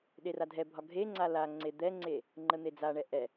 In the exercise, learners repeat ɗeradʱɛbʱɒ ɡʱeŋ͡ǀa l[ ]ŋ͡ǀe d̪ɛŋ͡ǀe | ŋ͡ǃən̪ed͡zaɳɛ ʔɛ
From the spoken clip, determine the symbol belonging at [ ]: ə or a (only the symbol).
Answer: a